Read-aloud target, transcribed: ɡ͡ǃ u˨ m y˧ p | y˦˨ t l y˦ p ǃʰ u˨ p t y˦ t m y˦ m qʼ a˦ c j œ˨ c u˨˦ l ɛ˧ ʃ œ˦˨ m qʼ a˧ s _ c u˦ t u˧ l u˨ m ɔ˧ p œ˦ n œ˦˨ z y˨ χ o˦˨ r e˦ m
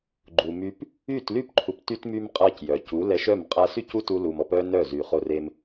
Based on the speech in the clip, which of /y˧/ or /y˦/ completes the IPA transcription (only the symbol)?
y˦